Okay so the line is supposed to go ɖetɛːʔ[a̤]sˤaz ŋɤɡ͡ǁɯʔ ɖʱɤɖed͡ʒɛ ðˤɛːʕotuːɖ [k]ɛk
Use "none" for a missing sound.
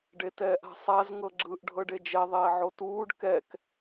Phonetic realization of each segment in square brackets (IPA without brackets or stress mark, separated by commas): a̤, k